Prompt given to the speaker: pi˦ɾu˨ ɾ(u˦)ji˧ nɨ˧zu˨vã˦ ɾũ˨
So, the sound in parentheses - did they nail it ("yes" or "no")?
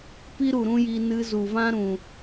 no